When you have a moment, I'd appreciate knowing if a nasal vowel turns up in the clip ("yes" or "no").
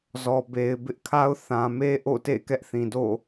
yes